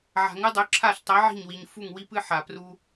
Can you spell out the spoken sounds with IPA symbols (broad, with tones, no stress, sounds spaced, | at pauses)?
ʕ a̤˨ ŋ ɨ˦ dˤ ʉ˨˦ ǁʰ a˦˨ ɬ tˤ i˨˦ ʕ i̤˦˨ ɲ w i˨ ɲ f u˦˨ ŋ w i˦ p ɨ˦ ħ a˨ p r u˦